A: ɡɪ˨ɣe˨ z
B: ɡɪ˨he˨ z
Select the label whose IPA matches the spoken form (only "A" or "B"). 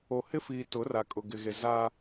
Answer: A